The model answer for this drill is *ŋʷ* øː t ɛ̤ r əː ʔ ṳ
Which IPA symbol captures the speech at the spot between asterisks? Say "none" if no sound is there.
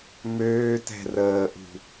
m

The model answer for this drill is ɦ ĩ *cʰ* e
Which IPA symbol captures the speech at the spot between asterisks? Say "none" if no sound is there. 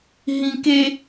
k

